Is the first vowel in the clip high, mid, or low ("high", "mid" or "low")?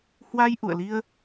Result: low